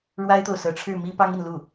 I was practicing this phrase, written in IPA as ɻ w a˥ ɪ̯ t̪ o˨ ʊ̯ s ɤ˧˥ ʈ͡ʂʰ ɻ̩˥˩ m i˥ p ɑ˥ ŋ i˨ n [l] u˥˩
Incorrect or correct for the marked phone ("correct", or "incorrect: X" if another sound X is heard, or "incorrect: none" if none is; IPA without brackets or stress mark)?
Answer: correct